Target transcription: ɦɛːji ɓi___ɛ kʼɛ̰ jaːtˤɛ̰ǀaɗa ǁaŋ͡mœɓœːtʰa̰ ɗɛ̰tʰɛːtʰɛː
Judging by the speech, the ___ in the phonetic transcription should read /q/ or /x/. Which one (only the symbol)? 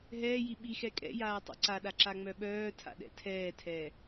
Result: x